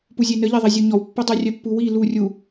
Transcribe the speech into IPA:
p u zʲ e n ə ʎ e ðˤ i zʲ ɵ ɲ ɔ w pː ɘ dˤ ɵ rʲ œ pː u w i l u rʲ u

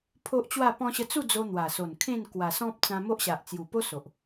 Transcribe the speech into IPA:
pʰ o˦ ʔ t͡ɕ w a˥˧ p ɔ̃˧ ɕ ə˧ t͡s u˥˧ d͡z o˧ n̪ w a˨˩ s o˨˩ n kʰ ẽ˥˧ n k w a˨˩ s ɔ̃˦ p̚ t͡s ã˧ m o˦ ʔ ɕ a˨ ʔ t͡s j u˨˩ p o˦ s o˨ ʔ

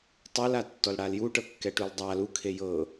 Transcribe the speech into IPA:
tˤ ɤ l a tː ɔ l ɽ a l j u ʈ ɤ kː ɛ ʈ u l dˤ a l u kʰ e j ɤ

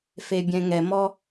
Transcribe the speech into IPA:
f e bʲ ɛ̃ ŋ ɛ m ɔ

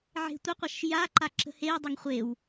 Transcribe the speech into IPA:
ʕ e̤ tʷ ɐ qʷ ɐ ʃ j a ǃ a ǁ ə̤ h e j dˤ ʊ ŋ χʷ e w

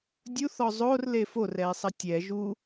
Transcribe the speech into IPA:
dʲ u θ ɔ zˤ o r l e f o r ɛ i̯ sˤ ɐ tʲ ɛ ʒ u

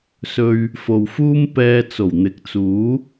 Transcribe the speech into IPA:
s ɵ˧ ɥ | f o˨ w f uː˥ m p ɛː˧ t͡s o˨˩ w n̪ ɪ˨˥ k̚ t͡s uː˨˥

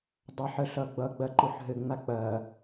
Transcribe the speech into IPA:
dˤ a ħ ə ɬ ʌ ɡ͡b ʌ ɡ͡b ɐ ǃ u ħ ɦ ɘ ŋ͡m a k͡p ɐ

